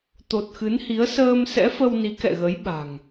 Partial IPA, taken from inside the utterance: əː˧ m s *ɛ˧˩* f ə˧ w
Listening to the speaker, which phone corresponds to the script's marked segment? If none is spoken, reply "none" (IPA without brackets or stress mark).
ɛ̰˧˥